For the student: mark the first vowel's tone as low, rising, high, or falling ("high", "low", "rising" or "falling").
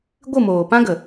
falling